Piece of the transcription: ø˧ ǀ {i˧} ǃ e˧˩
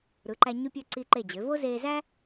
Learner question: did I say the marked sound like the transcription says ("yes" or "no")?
yes